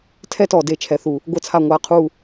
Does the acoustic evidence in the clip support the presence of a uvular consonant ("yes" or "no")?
yes